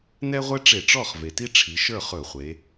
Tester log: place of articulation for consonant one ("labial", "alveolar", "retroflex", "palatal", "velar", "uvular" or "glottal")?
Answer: alveolar